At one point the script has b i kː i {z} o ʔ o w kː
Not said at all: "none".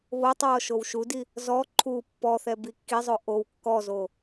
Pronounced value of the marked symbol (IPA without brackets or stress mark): zˤ